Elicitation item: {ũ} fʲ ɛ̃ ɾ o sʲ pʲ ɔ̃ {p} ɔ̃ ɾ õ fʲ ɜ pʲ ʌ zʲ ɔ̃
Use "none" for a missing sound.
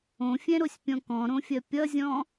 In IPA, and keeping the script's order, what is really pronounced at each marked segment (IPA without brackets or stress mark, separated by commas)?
õ, k